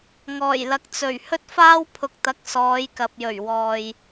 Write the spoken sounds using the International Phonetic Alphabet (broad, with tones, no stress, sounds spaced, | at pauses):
ŋ ɔː˨˩ j l ɐ˨˥ k̚ t͡s ɵ˨˩ ɥ h ɵ˥ t̚ f aː˥ w pʰ ʊ˧ k̚ t̪ ɐ˧ k̚ s ɔː˨˧ j k ɐ˨ p̚ j ɵ˨˩ ɥ w ɔː˨ j